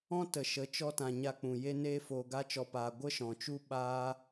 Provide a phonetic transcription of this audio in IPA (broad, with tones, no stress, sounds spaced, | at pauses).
ɔ̃˦ t ə˨ ʃ ə˨˦ t͡ʃ ɔ˧ t ã˨ ɲ a˧ k͡p ũ˨ j e˧ n eː˧ f oː˧ ɡ a˦ t͡ʃ ɔ˧ p aː˧ ɡʷ ə˦ ʃ ɔ̃˨ t͡ʃ u˦ ɓ aː˦